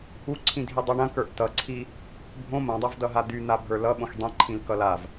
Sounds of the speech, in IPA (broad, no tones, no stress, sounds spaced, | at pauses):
u ǀʰ ĩ dʱ i dˤ o ɳ ɐ̃ k ə˞ ʔ t ʌ ǀʰ i | bʱ õ m ɐ̃ dˤ ɐ v d ʌ ɦ a d̪ y n̪ a bʱ ə˞ l ʌ ɓ õ x dˤ ĩ ǃʰ ĩ l k ʌ l a v